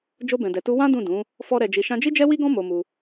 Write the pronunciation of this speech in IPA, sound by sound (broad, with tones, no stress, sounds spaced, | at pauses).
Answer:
d͡ʒ o˧ b ɛ̃˨ d ɛ˨ t u˧ w ã˦ d ũ˦˨ d ũ˨˦ | f ɔ˧ ɾ ɛ˨ d͡ʒ i˨ ʃ ã˧ d͡ʒ i˦ d͡ʒ ɛ˦ w i˦ ɡ ɔ̃˦ m o˧ m u˧